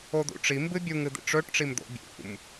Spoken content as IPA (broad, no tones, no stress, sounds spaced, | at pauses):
o d̪ ṵ ʈ͡ʂ i m b ɨ bʲ u ŋ ɨ d̪ ḭ ʈ͡ʂ ɵ ʈ ʈ͡ʂ i m d̪ o̰ bʲ ṵ m